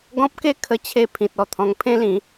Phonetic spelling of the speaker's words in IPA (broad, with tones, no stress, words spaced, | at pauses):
ɡɔ̃˦p̚ke˥˧ kʰə˧t͡ɕʰe˧ pʰĩ˨t̚ ɔ˧t̪ʰɔ̃˧ŋ pʰẽ˦lĩ˨˦